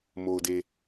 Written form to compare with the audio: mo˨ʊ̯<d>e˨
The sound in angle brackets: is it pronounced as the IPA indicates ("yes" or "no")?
yes